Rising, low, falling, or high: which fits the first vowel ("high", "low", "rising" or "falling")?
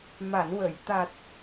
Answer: low